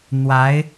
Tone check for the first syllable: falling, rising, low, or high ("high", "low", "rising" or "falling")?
rising